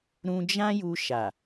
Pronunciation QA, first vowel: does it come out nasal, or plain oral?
nasal